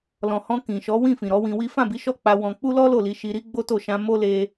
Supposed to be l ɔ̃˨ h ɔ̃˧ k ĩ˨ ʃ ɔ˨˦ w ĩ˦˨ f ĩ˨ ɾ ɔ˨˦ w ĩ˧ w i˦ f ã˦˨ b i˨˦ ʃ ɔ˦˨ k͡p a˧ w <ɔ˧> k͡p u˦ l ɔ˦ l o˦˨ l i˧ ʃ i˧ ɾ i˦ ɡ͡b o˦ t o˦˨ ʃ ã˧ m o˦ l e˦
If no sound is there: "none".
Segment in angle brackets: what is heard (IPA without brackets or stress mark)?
ɔ̃˧